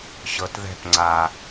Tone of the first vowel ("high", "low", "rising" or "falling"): low